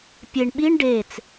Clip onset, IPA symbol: pʲ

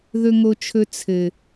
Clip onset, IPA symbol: ð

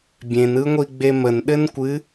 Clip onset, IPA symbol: bʲ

